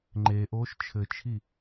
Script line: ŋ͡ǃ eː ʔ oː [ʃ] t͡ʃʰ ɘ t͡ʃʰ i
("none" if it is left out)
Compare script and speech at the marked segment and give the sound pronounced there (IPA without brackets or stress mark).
ʃ